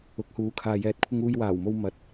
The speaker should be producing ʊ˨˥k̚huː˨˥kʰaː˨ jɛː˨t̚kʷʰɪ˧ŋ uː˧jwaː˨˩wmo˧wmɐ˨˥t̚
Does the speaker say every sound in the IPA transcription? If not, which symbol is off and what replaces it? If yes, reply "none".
none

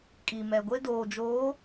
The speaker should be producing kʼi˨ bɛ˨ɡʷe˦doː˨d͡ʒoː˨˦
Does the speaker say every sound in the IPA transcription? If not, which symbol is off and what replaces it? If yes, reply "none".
b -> m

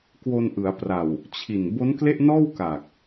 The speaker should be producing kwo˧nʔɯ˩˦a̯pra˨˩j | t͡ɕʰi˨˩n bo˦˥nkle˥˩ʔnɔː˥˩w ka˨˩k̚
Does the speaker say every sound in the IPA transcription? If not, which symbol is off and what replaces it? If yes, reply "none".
j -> w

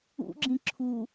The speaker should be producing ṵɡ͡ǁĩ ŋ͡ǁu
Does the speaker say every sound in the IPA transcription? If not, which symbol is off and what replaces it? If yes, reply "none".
ŋ͡ǁ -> ǁʰ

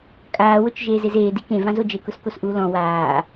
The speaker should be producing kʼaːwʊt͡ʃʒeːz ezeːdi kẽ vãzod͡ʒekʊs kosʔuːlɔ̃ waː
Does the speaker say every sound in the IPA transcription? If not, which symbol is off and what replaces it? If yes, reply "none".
none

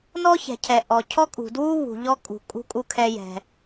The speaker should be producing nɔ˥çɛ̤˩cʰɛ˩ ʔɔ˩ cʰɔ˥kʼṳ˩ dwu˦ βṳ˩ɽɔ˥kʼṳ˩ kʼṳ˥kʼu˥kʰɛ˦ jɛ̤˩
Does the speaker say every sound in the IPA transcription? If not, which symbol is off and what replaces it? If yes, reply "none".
ɽ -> ʎ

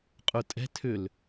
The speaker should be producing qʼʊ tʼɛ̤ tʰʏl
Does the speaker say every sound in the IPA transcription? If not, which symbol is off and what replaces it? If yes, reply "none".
none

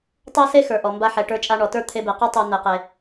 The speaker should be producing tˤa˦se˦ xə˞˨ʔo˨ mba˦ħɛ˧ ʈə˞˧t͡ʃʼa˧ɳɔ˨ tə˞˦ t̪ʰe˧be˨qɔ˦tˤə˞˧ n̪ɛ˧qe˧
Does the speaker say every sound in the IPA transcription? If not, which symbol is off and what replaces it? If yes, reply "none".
o˨ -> ɔ˨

